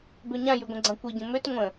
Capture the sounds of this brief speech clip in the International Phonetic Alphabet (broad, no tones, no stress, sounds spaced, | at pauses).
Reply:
b ø ɲ ã j y ɡʷ ə̃ ɡ͡ǀ ã kʷ i ɟ ə̃ m ø t ŋʷ ə̃